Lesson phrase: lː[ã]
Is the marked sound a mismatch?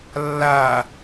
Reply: yes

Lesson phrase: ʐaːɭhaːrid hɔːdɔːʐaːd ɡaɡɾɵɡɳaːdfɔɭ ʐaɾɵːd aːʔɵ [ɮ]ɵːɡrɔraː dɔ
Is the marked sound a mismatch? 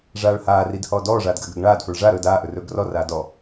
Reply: yes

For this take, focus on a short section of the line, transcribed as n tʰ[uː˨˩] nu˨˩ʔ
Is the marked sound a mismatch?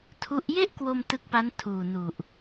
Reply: no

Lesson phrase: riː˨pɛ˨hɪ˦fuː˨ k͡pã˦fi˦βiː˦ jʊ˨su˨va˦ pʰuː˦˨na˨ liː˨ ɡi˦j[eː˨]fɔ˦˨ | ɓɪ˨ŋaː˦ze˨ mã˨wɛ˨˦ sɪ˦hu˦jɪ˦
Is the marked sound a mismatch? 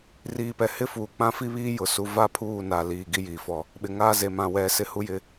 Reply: yes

